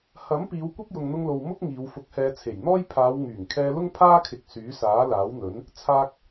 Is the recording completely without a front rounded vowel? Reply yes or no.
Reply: no